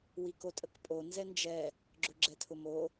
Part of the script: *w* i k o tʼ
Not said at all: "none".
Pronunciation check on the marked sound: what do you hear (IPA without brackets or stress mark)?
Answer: w